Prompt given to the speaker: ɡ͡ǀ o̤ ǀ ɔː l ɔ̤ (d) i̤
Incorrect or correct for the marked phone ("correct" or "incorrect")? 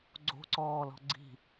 incorrect